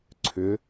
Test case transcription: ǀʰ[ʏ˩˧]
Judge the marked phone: correct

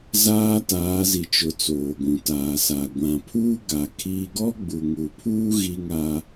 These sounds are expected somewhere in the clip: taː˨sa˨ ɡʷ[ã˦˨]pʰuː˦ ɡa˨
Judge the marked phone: incorrect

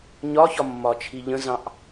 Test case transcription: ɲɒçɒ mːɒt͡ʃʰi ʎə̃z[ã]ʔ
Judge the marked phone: incorrect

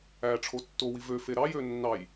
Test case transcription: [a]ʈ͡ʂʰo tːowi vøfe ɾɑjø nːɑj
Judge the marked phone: incorrect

